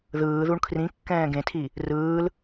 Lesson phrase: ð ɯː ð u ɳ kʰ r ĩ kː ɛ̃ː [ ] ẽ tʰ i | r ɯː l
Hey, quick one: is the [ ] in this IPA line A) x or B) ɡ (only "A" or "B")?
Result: B